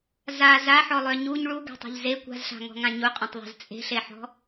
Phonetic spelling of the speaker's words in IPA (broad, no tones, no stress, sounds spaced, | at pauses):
z a z a ħ ɔ lˠ œ ɲ u ɲ ɭ u ɡ a̤ tˤ e̤ ʎ z e kʷ a̤ z ɬ a̤ ŋ ɔ̤ ŋ ã ɲ u qʼ œ̃ tˤ ðˤ a̤ z t͡sʼ e̤ ɬ e ħ ɔ̤